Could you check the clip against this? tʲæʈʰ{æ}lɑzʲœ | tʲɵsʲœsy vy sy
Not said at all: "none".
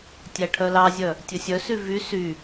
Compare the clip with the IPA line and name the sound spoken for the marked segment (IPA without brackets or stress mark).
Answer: œ